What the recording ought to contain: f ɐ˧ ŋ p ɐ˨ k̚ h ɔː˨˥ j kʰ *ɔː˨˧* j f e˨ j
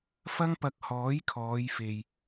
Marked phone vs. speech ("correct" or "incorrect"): correct